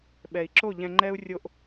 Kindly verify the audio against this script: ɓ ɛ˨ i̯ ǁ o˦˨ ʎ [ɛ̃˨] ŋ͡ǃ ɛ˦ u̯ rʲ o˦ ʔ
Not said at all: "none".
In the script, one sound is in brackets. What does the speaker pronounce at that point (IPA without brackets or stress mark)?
ɛ̃˨